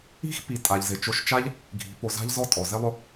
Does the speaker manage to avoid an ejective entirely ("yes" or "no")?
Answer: no